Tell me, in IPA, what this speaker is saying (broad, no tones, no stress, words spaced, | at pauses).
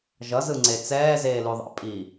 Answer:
ʒʌzɯŋ͡ǀe t͡sɛːzeːluðˤa̰ pʼi